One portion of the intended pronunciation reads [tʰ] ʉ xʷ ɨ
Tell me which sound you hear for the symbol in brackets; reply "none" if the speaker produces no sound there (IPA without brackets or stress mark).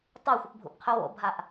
tˤ